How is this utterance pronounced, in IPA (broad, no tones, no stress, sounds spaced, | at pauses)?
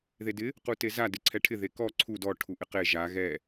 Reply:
ð e d ɪ | q u t e z a d ɪ ǀʰ ɛ ʈʰ ɪ ð e k ɔ ǀʰ u d ɔ ʈʰ u ʔ ɪ q e ʒ a ɣ ɛ